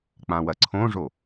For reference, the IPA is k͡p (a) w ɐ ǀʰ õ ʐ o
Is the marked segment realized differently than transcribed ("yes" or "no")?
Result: yes